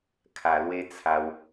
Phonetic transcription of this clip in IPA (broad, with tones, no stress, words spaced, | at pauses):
kʰa˨˩lwe˦t͡sʰa˧w